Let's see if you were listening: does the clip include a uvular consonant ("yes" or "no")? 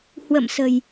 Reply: no